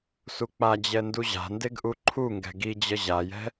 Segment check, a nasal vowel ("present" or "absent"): absent